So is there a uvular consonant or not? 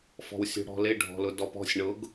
no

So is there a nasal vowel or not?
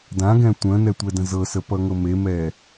yes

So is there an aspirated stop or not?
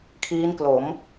yes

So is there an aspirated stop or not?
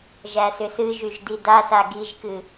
no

